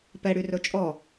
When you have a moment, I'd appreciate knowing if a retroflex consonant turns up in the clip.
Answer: yes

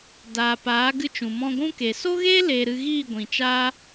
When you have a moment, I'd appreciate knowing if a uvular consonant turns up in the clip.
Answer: no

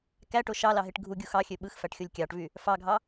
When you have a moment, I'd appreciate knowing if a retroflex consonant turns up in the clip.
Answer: yes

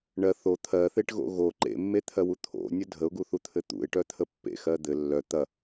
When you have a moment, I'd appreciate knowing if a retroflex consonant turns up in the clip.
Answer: yes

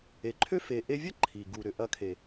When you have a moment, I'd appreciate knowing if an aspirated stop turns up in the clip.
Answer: yes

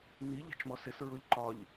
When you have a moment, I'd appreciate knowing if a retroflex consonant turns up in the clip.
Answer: no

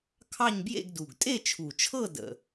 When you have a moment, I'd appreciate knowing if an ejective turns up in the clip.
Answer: yes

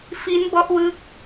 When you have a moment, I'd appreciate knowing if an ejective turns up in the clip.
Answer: no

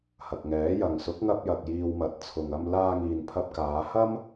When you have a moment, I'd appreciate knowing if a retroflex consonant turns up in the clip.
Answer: no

